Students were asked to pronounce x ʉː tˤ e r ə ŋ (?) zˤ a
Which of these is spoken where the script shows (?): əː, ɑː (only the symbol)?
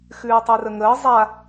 əː